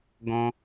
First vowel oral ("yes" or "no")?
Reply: no